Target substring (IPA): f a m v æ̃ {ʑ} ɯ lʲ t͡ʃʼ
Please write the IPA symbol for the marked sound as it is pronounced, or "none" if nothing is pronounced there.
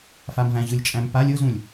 ʑ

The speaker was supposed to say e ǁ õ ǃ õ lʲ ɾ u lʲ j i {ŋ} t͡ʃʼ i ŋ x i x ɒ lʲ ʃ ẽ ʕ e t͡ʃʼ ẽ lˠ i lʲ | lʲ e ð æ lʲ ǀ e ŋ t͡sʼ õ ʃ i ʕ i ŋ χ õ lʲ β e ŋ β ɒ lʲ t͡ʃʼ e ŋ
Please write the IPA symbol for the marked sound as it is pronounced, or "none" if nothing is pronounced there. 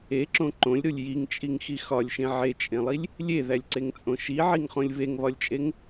ŋ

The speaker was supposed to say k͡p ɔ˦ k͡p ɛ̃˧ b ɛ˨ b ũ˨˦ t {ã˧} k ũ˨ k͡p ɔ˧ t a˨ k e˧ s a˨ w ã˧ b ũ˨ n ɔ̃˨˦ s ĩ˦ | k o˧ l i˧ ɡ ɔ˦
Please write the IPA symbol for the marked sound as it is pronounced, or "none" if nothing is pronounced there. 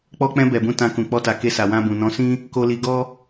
ã˧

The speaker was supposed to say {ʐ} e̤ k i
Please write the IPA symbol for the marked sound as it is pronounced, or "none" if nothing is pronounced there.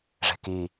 ʐ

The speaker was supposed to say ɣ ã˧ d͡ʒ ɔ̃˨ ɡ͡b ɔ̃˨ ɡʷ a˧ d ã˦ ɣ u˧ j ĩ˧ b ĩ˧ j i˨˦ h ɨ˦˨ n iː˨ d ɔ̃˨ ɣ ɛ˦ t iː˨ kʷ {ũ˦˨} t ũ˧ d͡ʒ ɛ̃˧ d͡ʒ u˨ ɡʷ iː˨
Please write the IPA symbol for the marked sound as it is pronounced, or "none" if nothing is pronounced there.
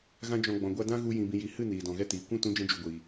ũ˦˨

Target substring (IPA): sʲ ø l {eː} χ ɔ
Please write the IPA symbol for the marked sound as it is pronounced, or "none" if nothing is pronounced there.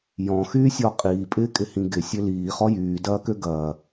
iː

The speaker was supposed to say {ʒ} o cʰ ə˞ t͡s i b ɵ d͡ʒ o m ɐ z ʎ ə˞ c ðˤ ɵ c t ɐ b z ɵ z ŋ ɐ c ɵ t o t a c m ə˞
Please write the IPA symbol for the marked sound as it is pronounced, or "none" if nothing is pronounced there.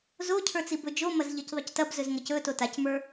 z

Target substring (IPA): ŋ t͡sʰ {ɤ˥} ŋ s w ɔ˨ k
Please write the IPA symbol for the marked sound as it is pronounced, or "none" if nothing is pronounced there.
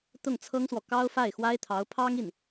ɤ˥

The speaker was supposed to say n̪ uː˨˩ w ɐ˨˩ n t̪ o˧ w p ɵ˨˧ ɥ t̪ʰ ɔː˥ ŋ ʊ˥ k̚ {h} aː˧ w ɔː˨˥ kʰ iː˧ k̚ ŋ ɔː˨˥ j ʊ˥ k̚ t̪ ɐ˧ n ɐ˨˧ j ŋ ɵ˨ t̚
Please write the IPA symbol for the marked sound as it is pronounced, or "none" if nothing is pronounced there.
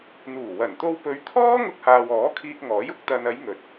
h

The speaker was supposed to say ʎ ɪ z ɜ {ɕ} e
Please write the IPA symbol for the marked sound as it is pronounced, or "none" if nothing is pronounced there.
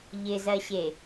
ɕ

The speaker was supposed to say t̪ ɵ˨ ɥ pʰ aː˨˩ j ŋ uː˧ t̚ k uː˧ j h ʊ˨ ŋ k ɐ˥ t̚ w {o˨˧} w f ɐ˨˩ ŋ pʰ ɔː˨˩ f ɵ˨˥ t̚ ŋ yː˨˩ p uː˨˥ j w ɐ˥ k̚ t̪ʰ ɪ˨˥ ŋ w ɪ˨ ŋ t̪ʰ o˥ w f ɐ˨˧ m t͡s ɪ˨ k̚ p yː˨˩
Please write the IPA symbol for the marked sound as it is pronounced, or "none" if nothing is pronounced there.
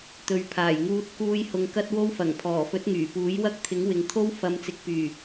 o˥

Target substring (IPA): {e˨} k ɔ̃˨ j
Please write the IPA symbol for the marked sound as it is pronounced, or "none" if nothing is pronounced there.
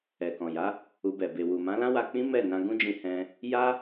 ɛ˨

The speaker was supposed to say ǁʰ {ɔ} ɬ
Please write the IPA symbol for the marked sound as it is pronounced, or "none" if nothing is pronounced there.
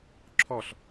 ɔ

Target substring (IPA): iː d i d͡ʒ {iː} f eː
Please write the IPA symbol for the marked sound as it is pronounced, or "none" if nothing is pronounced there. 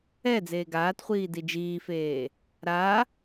iː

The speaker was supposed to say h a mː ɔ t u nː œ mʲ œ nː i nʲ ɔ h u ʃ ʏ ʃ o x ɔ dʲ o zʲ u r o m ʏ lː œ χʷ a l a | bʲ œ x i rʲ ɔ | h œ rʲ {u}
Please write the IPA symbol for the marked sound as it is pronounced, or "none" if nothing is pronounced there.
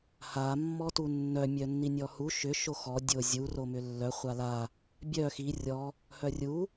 u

